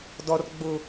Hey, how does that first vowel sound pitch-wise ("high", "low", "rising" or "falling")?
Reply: high